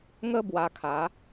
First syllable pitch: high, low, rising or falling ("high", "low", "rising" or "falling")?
high